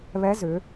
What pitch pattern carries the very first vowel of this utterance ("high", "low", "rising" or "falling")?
rising